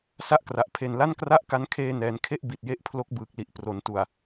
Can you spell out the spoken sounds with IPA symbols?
s a˥˩ ʔ k r a˨˩ ʔ pʰ e˨˩ n l a˥˩ n k r a˥˩ ʔ k a˦˥ n kʰ eː˧ n ɛː˩˦ n kʰ e˦˥ ʔ b i˨˩ t̚ j e˦˥ ʔ pʰ l o˦˥ k̚ b ɯː˨˩ k̚ l i˨˩ ʔ p r o˩˦ n t u˨˩ a̯

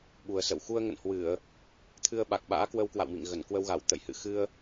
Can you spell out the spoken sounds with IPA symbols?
ɓ u˨˩ ə̯ s ə̰˧˨ w x u˧ ə̯ ŋ ə̰˧˨ n h w ɨ˧˩˨ ə̯ | t̪ʰ ɨ˧ ə̯ ɓ a˨˩ k̚ ɓ a̰ː˧˥ k w ə˧ w k w a̰˧˨ w m ḭ˧˨ ŋ ɣ ə˧˩ n k w ə˧ w ɣ a˧˩ w t̪ ə̰˧˨ j h ɨ̰˧˨ x ɨ˧ ə̯

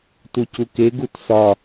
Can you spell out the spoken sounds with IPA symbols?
t u c u k e ɡ u t s ɒ

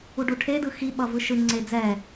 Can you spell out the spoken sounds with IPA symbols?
u ɖ u ʈʰ e d ɯ x i ɓ ʌ v ɯ ʃ ɯ ŋ͡ǀ e d͡z ɛ

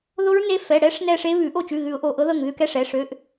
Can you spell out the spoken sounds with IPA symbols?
ð o˦˥ ɹ n e˦˥ f ɛ˩˧˩ ɽ ɛ˦˥ ʂ n ɛ˦˨ ʂ e˦˥ β ʉ˨˩˦ ʔ o˦˨ t͡ʃ ʉ˩˧˩ ɣ ʉ˨˩˦ ʊ̯ ʔ o˩˧˩ ʔ ɤ˦˥ ð ɤ˦˨ ŋ ð ʉ˧˥˧ k ɛ˧˥˧ ʂ ɛ˩˧˩ ʂ ø˧˥˧ ʔ

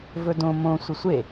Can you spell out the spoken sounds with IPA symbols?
v ɵ d õ m õ sʷ ɐ sʷ e

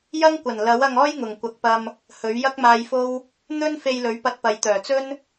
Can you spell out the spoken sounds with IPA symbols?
j ɐ˥ ŋ kʷ ɐ˨˩ n l ɐ˨˥ w ɐ˧ ŋ ɔː˥ j ŋ ʊ˨˩ ŋ kʷ ɐ˨˥ k̚ p ɐ˧ m | h ɵ˨˥ ɥ j ɐ˥ k̚ m aː˧ j f o˥ w | n̪ ɵ˥ n f e˧ j l ɵ˨˥ ɥ p ɐ˧ t̚ p ɐ˨ j t̪ œː˨˩ t͡s ɵ˥ n

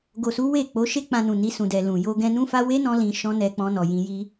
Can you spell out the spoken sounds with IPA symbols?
ɡ o˨ s u˨˦ w e˦˨ k͡p o˨˦ ʃ e˦ k͡p ã˧ n ũ˨ n i˧ s ũ˨ d ɛ˨ l ũ˨ j o˧ ɡ ɛ̃˧ n ũ˦ f a˦ w e˦ n ɔ̃˧ l ĩ˧ ʃ ɔ̃˦ n ɛ˧ k͡p ɔ̃˧ n ɔ˨ j ĩ˧ j i˦

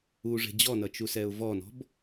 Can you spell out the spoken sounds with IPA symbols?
u ʐ e̤ d͡ʑ ɔ n ʌ t͡ʃ u s ɛ ʊ̯ v ɔ n ɔ̤ b

